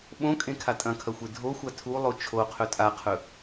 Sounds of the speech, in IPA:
ɓ õ kʼ ẽ kʰ a tʼ ɐ̃ kʰ ɐ xʷ e dʱ o xʷ a tʰ u lˠ o t͡ʃʰ o qʰ ɵ tʼ a qʰ ɵ

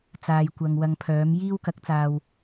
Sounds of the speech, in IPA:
t͡s aː˨ j kʷ ɐ˨ ŋ w ɐ˧ ŋ pʰ œː˨˥ m j iː˥ w k ɐ˨˥ k̚ t͡s aː˨ w

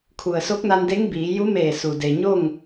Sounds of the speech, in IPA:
kʰ u˩ ə̯ s o˧˥ k̚ n a˧ n d e˧˥ ŋ b iː˩˧ j u˧˥ m eː˧˩ s u˩ d e˩ ɲ o˥˨ ŋ

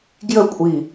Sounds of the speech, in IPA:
ɡ j ə kʷʼ i

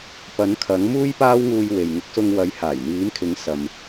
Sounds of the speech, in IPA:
p ɐ˨˥ n kʰ ɐ˨˥ ŋ m uː˥ j p aː˥ w ŋ uː˧ j w e˨ j ŋ ɪ˨˥ k̚ s ʊ˧ ŋ w ɐ˨˥ j h aː˨˩ j n̪ iː˨˥ m kʰ ɪ˨˥ ŋ s ɐ˨ m

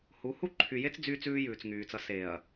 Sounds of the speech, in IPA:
h u˨˦ h u˦ ǃʰ y˨ j e˦ t͡s d͡z yː˦ t͡s ʉː˦ j ʉː˨ t͡s ŋ yː˨ t͡s ʌ˦ s e˨ ɐ̯

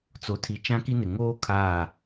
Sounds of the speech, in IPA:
t͡s o˨ tʰ i˨ t͡ʃ ã˦ k i˦ n ɪ˨ ŋ oː˦ kʰ aː˦˨

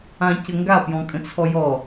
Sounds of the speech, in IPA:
ã c ə ŋ ɡ a p j ɔ̃ kʼ ə̃ t͡sʰ ɔ j ɔ

